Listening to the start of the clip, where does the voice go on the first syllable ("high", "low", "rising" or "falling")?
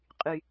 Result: high